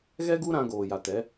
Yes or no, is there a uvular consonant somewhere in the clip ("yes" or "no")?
no